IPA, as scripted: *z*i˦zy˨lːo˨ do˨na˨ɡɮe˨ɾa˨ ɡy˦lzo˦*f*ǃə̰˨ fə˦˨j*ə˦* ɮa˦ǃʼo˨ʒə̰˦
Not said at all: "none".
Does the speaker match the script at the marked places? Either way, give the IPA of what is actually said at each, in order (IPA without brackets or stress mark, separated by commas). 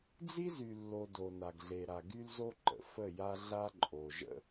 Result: d͡z, none, a˦